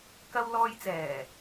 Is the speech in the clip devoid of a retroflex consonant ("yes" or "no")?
yes